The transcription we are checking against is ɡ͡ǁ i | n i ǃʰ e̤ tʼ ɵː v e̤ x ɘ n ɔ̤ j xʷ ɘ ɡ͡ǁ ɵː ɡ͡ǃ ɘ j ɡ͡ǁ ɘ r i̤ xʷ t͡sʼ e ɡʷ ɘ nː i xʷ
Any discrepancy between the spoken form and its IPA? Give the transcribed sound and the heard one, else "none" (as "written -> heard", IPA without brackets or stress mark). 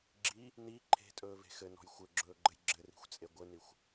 nː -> n